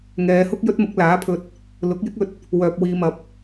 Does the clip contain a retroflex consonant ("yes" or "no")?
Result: no